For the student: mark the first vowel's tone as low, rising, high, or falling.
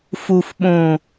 low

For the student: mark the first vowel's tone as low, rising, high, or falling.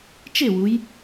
falling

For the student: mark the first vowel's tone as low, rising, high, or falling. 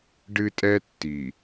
high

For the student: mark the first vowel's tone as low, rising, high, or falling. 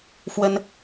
high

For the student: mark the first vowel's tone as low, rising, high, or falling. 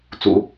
low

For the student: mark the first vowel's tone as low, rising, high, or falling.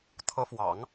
rising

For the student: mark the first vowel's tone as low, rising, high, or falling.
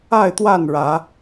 falling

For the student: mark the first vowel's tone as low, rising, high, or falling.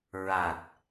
low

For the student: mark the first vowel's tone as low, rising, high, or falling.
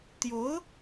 rising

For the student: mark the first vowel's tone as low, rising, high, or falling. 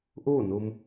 falling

